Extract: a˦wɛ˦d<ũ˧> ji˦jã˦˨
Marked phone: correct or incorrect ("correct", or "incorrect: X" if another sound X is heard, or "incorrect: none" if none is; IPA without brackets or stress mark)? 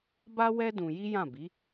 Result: correct